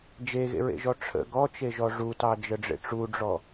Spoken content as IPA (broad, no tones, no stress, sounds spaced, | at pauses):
d͡ʒ e ɣ ḛ ɹ ḛ ʒ ɔ ʈ͡ʂʰ ə̰ ɡ ɔ t͡ʃ e ʒ ɔ ʐ u t ɑ d͡ʒ ə ɖ͡ʐ ḛ ʈ͡ʂ u ɖ͡ʐ ɔ